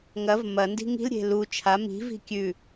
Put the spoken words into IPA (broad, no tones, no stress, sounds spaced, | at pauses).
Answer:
ŋ ɐ v m ɐ n d i̤ ŋ i̤ l ɾʲ e̤ l u t͡ʃʰ a m i̤ v i̤ kʲ ʉ